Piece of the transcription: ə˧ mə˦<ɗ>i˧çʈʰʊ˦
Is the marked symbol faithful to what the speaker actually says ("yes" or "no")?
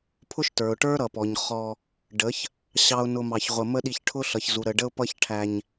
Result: yes